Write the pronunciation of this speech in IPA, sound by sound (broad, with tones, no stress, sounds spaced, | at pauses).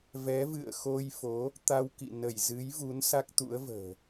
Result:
v ɛ˨˦ v ɨ̰˧˨ ə̯ x o˧ j f o˨˦ | t̪ a˧ w k ḭ˧˨ n ə˧˩ j z ɨ˨˦ j v u˨˦ n s a˦˥ k̚ t̪ ṵ˧˥ ə̯ v ə̤ː˨˩